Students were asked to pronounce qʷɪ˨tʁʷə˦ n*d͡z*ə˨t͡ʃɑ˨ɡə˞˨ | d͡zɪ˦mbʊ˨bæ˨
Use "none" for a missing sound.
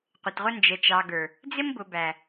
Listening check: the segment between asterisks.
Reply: d͡ʒ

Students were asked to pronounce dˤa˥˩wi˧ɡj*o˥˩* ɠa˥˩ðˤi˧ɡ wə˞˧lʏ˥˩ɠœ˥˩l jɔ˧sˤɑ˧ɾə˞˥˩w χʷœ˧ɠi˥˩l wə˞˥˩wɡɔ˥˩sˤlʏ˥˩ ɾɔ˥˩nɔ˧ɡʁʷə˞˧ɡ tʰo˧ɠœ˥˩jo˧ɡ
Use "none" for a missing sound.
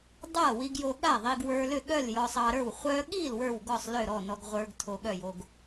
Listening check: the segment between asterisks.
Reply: o˧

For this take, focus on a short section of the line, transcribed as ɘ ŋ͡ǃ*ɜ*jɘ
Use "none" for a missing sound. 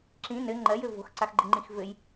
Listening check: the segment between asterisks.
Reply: ɜ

